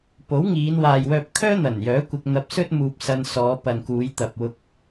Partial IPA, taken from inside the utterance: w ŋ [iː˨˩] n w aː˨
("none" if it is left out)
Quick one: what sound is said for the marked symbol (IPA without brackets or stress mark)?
iː˨˧